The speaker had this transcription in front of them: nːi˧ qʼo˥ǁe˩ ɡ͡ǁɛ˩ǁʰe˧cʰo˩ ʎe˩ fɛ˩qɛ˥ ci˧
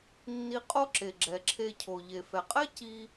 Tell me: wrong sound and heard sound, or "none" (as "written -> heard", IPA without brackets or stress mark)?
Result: q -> qʼ